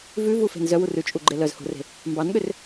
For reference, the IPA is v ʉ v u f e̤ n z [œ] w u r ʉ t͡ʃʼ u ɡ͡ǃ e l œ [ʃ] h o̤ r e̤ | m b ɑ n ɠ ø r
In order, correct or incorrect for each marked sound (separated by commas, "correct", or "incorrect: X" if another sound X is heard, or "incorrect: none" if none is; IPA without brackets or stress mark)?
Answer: correct, incorrect: z